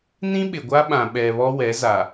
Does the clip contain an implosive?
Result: yes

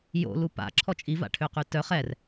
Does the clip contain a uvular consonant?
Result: yes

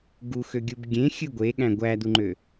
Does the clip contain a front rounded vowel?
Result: yes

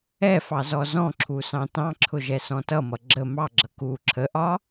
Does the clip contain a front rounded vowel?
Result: no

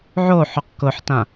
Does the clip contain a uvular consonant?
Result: yes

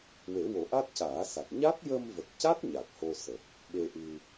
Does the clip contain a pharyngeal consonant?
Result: no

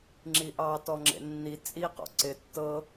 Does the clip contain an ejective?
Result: yes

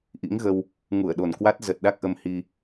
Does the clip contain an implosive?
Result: yes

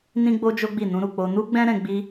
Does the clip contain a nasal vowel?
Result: yes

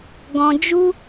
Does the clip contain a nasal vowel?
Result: yes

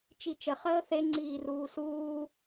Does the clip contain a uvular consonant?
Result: yes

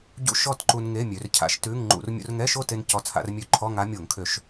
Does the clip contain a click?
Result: yes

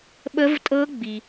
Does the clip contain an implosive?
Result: yes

